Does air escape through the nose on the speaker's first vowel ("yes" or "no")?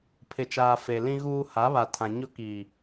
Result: no